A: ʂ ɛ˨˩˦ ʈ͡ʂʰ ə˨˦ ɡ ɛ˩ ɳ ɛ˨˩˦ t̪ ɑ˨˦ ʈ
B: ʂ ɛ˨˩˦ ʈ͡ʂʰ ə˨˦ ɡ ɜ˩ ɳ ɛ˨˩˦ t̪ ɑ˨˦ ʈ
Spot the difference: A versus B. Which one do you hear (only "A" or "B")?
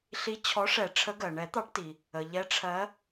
B